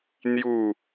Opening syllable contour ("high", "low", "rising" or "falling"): falling